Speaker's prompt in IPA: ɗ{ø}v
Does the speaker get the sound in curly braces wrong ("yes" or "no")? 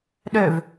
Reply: no